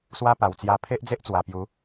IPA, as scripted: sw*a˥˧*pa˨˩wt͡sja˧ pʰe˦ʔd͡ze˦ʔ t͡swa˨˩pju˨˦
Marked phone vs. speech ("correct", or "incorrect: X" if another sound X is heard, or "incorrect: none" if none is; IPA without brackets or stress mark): incorrect: a˦